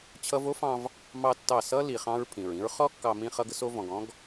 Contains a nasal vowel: yes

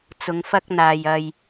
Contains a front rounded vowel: no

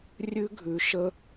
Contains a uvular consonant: no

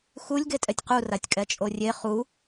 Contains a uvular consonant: yes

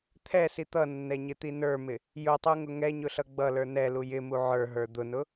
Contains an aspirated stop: yes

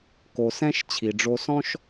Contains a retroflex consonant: yes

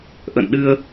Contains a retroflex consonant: no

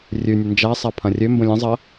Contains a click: no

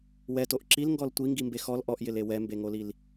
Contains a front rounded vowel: no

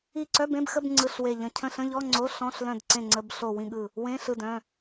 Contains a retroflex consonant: no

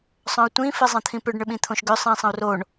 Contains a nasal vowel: yes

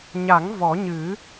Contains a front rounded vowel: no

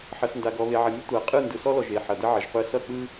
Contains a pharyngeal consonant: yes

